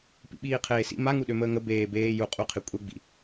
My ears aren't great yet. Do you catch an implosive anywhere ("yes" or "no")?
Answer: yes